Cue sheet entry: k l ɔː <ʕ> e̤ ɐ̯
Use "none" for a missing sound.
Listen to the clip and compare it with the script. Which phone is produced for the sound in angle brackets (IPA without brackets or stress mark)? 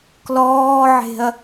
ʕ